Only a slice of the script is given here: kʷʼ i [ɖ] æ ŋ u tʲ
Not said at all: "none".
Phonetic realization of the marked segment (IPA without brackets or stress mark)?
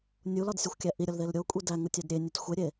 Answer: d